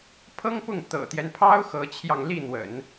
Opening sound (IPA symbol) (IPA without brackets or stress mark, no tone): pʰ